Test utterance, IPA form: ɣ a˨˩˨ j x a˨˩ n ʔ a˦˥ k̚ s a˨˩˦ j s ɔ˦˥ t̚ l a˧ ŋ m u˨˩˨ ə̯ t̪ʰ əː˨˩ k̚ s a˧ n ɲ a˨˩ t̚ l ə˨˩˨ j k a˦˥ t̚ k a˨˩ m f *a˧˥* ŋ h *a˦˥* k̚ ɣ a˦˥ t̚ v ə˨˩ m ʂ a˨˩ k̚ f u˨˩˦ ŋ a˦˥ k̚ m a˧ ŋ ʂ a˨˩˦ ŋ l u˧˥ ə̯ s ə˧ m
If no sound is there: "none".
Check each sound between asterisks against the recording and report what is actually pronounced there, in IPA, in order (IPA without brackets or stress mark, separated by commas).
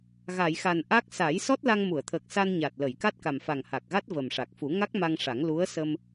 a˨˩, a˨˩